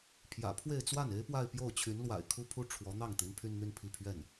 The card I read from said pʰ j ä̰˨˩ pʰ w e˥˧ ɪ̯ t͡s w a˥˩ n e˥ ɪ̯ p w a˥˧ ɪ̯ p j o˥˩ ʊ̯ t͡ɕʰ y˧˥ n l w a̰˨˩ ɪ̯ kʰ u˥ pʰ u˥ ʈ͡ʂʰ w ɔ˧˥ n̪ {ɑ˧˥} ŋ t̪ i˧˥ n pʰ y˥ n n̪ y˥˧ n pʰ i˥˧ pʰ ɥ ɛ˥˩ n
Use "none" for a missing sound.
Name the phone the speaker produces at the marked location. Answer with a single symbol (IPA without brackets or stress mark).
ɑ˥˩